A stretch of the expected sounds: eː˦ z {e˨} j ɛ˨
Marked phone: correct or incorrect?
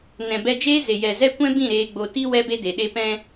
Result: correct